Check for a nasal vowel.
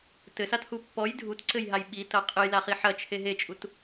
absent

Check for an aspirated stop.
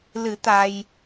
absent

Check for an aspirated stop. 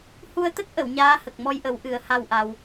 absent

